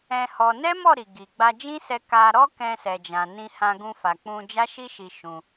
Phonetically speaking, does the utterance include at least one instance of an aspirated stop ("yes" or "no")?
no